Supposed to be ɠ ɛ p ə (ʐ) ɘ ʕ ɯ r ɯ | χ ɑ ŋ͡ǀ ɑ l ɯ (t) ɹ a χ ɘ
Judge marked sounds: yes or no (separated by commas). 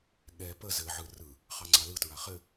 no, yes